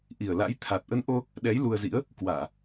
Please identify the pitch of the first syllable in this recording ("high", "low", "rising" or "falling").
low